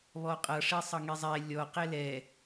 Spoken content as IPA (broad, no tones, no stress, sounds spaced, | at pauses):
β ɔ qʼ ʌ ʂ e sˤ ʌ ŋ e zˤ ɛ lʲ ɔ q ɛ l ɛ